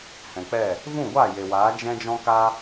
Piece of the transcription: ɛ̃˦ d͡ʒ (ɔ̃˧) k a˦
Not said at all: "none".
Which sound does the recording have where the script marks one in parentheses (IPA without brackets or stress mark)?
ɔ̃˦